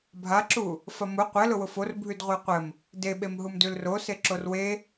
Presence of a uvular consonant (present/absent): present